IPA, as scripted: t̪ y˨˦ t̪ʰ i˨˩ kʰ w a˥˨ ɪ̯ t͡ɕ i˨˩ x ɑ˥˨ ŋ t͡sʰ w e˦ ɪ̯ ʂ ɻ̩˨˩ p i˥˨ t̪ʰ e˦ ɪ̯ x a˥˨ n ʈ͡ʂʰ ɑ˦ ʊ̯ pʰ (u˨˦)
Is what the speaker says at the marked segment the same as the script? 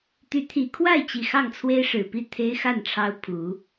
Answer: yes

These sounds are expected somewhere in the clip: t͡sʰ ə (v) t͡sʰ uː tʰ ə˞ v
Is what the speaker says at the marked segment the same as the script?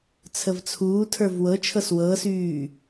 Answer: yes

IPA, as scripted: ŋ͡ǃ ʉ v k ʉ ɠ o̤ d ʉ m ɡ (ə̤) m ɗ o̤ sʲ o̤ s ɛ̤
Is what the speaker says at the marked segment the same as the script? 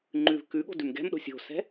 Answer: no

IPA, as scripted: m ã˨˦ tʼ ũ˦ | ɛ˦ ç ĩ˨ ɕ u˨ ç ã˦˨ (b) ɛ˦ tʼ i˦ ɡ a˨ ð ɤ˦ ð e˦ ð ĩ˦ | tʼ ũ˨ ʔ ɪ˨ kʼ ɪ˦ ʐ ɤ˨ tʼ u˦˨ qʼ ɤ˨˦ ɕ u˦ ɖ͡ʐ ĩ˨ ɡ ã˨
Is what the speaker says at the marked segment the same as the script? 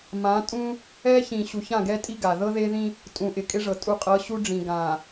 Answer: no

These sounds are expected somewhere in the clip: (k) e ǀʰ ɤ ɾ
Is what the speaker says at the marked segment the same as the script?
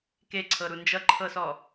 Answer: yes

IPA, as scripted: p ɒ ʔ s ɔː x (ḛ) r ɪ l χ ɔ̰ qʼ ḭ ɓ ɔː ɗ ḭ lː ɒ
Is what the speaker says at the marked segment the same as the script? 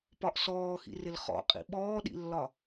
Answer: no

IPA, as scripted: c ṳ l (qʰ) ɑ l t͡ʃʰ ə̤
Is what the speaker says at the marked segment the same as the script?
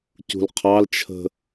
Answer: yes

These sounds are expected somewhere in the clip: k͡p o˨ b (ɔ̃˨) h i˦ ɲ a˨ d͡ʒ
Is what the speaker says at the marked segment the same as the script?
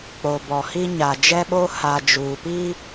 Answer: no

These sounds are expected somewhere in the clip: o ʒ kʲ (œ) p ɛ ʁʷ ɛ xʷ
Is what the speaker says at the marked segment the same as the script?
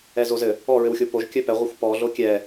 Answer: yes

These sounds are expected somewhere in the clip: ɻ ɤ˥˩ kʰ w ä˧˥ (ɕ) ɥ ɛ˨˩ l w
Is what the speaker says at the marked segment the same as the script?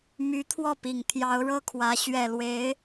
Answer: yes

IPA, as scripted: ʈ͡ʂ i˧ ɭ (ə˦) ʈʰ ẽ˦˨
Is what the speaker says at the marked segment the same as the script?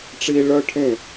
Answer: no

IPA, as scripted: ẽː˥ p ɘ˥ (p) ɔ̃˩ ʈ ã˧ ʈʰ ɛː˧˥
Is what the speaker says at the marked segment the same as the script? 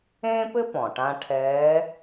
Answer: yes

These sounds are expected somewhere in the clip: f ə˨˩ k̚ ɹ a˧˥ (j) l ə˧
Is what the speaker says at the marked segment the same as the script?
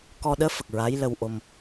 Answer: yes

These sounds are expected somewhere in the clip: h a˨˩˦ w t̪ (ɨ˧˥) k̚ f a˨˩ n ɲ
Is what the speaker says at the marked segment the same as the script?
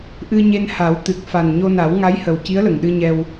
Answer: no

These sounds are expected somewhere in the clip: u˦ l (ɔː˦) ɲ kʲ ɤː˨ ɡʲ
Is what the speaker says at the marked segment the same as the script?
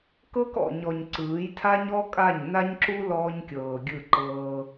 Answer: yes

